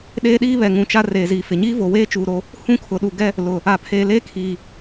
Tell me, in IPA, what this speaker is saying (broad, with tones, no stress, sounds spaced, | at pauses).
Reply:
ɗ eː˦ ɗ iː˦ β ɛ˨ ŋ ũ˨ t͡ʃ a˦ r eː˨ z iː˨ f ɪ˨ ɲ iː˦ v o˨ w eː˦ t͡ʃ uː˨ ɾ o˦ | h ũ˦ kʰ ʊ˨ ɗ u˨ ɡ ɛ˦ | l ʊ˨ | a˨ pʰ eː˨ l eː˦ kʰ iː˨